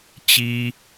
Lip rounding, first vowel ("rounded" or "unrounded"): unrounded